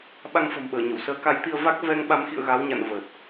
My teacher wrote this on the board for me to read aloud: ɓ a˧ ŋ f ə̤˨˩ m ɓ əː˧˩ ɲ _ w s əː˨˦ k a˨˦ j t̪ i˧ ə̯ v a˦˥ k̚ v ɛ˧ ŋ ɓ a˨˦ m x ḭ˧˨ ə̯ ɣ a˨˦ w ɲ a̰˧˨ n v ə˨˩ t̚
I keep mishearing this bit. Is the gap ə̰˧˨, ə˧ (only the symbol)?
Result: ə̰˧˨